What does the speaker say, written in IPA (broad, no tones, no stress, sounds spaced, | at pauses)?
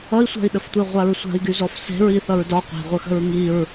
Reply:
ʌ i̯ sʷ a̤ i̯ ɗ ə f tʷ e ʁʷ a ɹ sʷ a̤ i̯ ɡ y z ɔ f s e̤ ɹ i θ ʌ ɹ d ɒ qʷ e̤ ʁʷ ə x ə̤ ɹ ŋ i ɹ